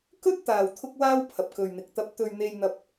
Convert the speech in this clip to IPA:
k ɵ˥ t̚ t̪ aː˨ w t̪ʰ ʊ˥ k̚ w aː˥ w pʰ ɐ˨ p̚ k ɵ˨ ɥ n̪ ɪ˨ k̚ t̪ ɐ˧ p̚ t̪ ɵ˧ ɥ n̪ e˧ j n̪ ɐ˥ p̚

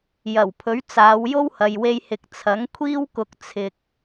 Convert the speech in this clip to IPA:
j ɐ˨˩ w pʰ ɵ˨˥ ɥ t͡s aː˨˧ w j o˥ w h ɐ˨ j w e˧ j h ɪ˨˥ k̚ t͡sʰ ɐ˨˥ ŋ kʷʰ iː˥ w k ʊ˧ k̚ t͡sʰ ɪ˧ k̚

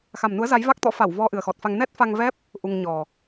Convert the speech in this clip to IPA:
x a˨˩ m n u˨˦ ə̯ z a˨˦ j v a˦˥ k̚ t̪ ɔ̰˧˥ f a˧˩ w v ɔ˧ ʔ ɨ˨˩ ə̯ x ɔ˨˩ t̚ f a˧ ŋ n ɛ˦˥ t̚ f a˧ ŋ v ɛ˦˥ p̚ | ʔ u˧ ŋ ɲ ɔ˨˩

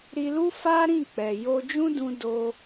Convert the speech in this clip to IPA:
ɾ i˧ l u˦ f a˦ ɾ ĩ˦˨ k͡p ɛ˨ j o˧ d͡ʒ ũ˦ d ũ˧ d o˧

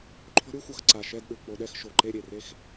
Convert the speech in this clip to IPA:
ǃʰ o̤˥ ɾʲ u˥˧ xʷ ʌ˧˩ x ǀ a˧˩ ʃ ɛ˥˧ d ɗ ɯ˩˧ k͡p o˧ ɗ ɛ˥˧ x ʃ o˧˩ ǃ e˥˧ ɾʲ e˧˩ r e˥˧ x

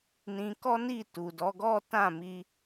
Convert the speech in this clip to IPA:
n ĩ˧ k ɔ˦ n i˦˨ t u˨ d ɔ˨˦ ɡ ɔ˦ t ã˦˨ m i˧

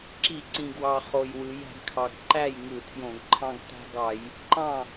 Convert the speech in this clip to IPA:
ǁ i˧˩˧ ǀ ĩ˨˩ ɡ w ɑ˨˩ χ o˨˩ j w ɯ˩˧ j æ̤˩˧ ɡ kʰ ɑ˨˩ ɡ ǃ æ˥˩ j ŋ ɯ˧˩˧ tʰ j õ˧˩˧ ɡ ǃʰ ɑ̃˦ ɡ t æ̤˦ ɡ ɑ˧˩˧ j | ǃ ɑ̃˥˩

